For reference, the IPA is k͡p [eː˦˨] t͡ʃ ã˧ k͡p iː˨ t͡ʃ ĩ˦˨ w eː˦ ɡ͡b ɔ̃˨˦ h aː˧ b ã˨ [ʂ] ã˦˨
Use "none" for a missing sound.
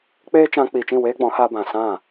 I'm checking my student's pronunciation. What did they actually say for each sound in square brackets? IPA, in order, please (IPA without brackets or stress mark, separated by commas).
eː˦, s